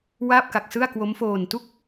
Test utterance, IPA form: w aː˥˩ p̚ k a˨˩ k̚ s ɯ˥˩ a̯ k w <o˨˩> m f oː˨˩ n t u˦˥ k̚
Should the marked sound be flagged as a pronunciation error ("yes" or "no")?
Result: yes